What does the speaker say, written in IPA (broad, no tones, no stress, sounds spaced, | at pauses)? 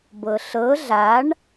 b ɤ ɬ ɤ ɮ a ɳ